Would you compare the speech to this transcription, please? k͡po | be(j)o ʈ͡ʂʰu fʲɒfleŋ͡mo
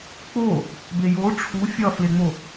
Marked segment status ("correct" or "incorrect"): correct